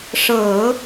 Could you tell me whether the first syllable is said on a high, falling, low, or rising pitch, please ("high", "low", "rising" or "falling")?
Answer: low